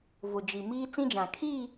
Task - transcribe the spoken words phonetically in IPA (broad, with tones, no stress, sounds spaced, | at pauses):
v ʊ˨ d͡ʒ i˨ m iː˦ t͡s ĩ˦ d͡ʒ ã˨ kʰ i˦˨